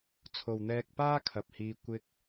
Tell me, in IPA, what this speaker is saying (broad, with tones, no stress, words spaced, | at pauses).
t͡sʰo˨wn̪ɛː˧k̚ paː˥kʰɐ˨p̚hiː˧ kʷɪ˧k̚